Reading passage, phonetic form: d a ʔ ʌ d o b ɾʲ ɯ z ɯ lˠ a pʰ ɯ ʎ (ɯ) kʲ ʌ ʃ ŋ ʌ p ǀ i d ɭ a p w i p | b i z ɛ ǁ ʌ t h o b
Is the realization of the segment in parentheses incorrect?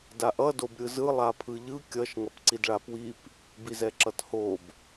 no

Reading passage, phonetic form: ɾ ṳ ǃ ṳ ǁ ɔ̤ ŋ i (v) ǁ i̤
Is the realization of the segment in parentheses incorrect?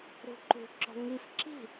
yes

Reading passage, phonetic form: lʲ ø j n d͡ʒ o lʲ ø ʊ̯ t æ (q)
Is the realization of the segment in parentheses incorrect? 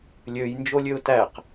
no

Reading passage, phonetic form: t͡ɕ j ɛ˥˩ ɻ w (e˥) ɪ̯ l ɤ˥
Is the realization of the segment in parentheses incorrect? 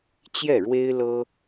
no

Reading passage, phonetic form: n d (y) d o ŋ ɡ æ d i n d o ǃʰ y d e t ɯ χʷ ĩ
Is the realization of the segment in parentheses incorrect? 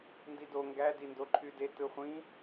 yes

